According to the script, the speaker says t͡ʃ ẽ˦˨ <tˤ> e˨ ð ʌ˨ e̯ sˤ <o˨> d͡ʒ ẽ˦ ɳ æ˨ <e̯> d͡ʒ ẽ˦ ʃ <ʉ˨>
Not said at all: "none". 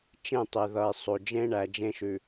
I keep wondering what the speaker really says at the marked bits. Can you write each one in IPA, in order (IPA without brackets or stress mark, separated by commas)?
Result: tˤ, o˨, none, ʉ˨